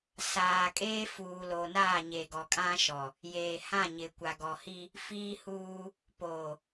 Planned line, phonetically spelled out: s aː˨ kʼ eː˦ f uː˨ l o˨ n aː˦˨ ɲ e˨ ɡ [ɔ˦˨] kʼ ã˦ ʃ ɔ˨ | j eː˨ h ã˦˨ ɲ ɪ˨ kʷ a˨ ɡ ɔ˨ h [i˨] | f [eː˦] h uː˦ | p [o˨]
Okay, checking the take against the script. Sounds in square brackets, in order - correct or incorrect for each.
incorrect: ɔ˨, incorrect: i˦, incorrect: iː˦, incorrect: oː˨

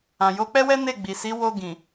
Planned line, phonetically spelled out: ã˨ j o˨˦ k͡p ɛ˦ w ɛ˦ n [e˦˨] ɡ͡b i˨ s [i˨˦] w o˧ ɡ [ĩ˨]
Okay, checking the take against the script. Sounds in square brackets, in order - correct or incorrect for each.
correct, correct, correct

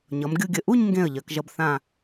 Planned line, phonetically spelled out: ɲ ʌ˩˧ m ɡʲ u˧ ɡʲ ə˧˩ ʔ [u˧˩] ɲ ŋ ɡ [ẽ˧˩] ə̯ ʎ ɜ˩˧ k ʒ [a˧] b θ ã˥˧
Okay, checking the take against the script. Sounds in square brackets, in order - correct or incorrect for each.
incorrect: u˥˧, correct, incorrect: ʌ˧

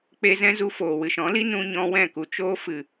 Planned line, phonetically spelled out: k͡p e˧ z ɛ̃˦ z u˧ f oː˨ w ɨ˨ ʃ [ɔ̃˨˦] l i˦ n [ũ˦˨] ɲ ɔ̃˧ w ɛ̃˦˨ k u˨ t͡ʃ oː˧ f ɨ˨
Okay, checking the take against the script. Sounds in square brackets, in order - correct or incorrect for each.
correct, incorrect: ũ˧

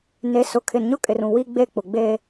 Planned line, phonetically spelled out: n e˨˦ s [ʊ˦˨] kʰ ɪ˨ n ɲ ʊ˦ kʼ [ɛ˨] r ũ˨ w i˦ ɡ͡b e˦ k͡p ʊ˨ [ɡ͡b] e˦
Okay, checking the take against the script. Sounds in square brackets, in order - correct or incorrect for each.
incorrect: ʊ˨, incorrect: ɪ˨, correct

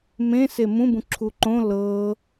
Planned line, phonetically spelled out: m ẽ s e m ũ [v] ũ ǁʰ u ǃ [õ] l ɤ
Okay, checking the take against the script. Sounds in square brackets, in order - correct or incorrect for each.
incorrect: b, correct

